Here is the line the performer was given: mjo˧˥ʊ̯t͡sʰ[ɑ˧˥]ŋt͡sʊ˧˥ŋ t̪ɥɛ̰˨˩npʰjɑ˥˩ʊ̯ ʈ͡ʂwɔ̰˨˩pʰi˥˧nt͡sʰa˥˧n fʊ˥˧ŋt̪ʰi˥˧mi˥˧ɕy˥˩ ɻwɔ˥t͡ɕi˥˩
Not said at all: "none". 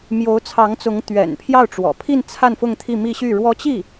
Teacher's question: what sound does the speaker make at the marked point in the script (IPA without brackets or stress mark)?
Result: ɑ˧˥